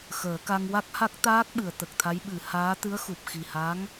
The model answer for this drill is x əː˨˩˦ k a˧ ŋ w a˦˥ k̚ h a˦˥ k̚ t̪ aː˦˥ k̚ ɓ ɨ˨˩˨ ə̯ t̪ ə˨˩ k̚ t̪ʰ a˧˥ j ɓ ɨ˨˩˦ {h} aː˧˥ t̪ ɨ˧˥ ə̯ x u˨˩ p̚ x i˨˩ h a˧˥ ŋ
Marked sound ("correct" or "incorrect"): correct